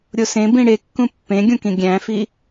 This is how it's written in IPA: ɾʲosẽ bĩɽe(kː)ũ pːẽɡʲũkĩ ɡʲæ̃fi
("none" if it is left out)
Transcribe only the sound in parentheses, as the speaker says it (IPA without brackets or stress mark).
kː